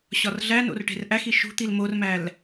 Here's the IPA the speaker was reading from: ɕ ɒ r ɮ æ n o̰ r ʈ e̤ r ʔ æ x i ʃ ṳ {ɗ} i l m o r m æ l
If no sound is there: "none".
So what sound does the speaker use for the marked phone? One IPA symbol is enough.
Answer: t̪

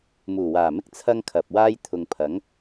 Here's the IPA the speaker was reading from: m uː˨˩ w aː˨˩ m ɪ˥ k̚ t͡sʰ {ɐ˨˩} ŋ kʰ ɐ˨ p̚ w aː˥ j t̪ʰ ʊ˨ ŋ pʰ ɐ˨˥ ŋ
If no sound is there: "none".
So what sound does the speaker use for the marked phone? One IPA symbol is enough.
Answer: ɐ˥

